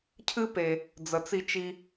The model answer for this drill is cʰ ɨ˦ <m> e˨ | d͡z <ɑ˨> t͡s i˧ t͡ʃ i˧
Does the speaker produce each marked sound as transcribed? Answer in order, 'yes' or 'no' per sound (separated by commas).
no, no